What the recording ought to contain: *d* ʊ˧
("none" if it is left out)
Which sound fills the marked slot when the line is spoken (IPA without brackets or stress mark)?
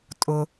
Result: tʼ